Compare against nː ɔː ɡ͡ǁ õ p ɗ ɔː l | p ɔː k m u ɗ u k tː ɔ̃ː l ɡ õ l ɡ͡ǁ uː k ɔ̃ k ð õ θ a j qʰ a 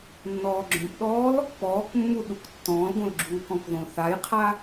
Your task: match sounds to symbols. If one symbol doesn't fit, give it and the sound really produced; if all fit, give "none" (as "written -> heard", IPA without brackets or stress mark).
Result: m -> mː